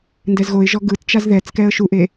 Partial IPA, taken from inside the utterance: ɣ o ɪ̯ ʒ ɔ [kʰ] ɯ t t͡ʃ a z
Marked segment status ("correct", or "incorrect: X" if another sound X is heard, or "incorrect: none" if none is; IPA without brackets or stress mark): incorrect: ɡ